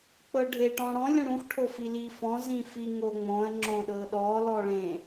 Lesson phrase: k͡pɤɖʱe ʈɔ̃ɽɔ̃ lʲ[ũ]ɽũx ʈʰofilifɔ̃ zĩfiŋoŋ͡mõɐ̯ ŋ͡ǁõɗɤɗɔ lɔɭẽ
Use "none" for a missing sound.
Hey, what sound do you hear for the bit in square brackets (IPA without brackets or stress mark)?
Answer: ũ